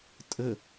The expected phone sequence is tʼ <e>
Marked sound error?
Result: yes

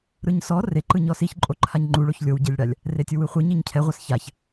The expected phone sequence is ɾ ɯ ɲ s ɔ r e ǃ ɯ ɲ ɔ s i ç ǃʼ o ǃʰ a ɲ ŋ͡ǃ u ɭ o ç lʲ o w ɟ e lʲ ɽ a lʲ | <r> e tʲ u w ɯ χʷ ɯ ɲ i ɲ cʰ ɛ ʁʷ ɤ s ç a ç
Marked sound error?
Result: no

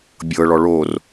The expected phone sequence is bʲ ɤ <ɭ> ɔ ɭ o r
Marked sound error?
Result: no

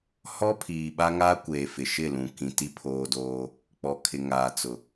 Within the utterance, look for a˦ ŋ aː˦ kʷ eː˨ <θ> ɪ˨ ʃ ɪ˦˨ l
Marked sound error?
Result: yes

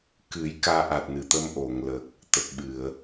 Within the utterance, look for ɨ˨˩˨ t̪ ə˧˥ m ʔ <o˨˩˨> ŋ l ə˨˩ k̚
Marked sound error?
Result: no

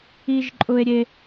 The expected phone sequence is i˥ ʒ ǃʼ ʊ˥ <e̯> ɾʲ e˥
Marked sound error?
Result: no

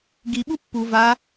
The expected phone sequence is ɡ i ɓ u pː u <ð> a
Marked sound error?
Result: yes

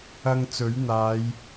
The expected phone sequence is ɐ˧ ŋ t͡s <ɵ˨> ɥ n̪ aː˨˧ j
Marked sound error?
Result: yes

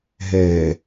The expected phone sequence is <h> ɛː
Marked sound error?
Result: yes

